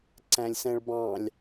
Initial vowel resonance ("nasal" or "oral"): nasal